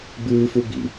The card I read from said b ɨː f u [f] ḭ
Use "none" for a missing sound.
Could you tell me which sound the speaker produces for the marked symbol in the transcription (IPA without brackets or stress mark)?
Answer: b